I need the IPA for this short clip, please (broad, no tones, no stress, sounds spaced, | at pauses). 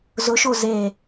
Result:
z ʊ ʃ o z e